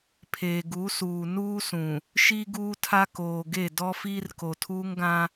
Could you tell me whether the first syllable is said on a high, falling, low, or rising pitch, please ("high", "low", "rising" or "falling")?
low